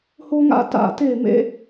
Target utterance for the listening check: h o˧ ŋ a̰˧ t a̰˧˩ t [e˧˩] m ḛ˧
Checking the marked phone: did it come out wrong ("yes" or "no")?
no